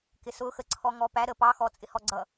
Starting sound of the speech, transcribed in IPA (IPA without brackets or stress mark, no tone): k